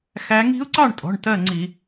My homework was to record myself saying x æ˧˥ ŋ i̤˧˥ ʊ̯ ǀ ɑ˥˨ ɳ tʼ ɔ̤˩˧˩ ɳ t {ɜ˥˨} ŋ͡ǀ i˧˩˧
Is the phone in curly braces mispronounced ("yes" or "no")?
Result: no